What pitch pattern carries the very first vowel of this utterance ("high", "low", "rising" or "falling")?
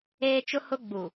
high